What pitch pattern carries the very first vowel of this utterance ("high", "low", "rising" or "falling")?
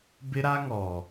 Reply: high